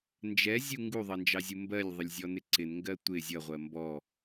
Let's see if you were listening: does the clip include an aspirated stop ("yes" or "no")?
no